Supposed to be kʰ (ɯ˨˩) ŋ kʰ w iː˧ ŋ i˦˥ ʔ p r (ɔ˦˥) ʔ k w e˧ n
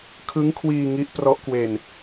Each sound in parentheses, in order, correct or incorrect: incorrect, correct

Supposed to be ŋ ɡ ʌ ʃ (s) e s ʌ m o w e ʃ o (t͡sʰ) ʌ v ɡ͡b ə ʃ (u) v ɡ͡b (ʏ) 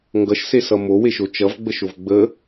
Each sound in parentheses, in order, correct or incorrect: correct, incorrect, incorrect, incorrect

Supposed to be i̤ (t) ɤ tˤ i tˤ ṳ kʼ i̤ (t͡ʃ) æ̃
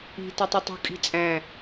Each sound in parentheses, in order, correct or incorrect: correct, incorrect

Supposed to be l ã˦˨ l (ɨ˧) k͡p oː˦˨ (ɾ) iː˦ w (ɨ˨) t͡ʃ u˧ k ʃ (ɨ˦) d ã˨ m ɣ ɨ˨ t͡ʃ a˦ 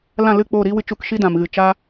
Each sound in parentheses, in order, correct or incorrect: incorrect, correct, incorrect, incorrect

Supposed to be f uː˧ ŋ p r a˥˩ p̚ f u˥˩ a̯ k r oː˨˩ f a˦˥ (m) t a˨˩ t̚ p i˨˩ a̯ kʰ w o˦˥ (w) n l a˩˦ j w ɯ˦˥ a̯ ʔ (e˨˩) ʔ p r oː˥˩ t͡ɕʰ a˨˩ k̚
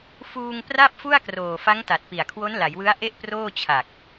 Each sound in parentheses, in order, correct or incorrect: incorrect, incorrect, incorrect

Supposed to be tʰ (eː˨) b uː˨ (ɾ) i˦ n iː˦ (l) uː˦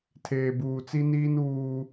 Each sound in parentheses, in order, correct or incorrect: correct, incorrect, incorrect

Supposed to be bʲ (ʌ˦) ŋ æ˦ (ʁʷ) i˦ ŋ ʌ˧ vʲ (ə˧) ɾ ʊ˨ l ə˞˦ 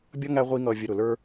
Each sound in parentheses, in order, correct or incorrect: correct, correct, correct

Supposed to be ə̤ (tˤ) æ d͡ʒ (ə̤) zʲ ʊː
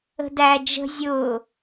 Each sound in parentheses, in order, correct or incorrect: incorrect, correct

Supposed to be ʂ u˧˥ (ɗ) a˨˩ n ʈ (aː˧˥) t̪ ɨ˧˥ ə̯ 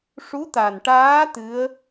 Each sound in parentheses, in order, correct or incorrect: incorrect, correct

